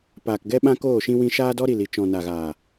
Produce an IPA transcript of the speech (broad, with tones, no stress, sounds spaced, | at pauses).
p aː˨ k ɡ ɛ˦ ɓ ã˦ k oː˦˨ ʃ ĩ˦ w ĩ˧ ʃ aː˦ d ɔ˦ ɾ i˨ l i˨ t͡ʃ ɔ̃˨ n a˨ ɣ aː˨